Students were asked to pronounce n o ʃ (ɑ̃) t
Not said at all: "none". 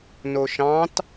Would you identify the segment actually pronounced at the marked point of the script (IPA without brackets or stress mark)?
ɑ̃